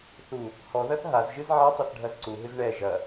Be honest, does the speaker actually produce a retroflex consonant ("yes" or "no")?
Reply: yes